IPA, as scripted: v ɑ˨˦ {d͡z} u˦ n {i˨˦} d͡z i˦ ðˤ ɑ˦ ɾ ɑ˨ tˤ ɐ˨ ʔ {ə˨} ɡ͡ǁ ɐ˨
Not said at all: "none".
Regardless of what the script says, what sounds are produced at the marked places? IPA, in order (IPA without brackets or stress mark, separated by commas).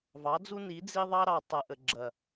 d͡z, i˨˦, ə˨